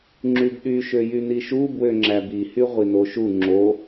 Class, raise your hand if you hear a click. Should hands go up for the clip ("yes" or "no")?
yes